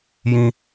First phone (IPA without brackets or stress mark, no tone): j